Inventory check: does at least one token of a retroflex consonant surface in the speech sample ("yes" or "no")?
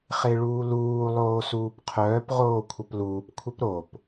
yes